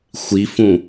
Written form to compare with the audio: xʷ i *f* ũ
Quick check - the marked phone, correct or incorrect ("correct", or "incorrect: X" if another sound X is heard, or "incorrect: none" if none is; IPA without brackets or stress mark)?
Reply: correct